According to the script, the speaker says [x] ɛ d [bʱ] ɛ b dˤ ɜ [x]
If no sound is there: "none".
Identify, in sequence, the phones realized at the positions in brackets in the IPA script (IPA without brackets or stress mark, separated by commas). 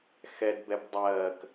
x, b, k